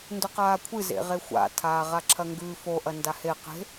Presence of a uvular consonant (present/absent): present